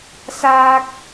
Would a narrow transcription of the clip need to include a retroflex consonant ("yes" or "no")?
no